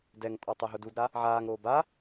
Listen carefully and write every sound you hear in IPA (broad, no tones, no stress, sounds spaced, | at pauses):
d ɛ ŋ tʼ ɔ tˤ ɛ ɦ ʊ d u d ɾ a | ʕ aː ŋ ɾ oː b a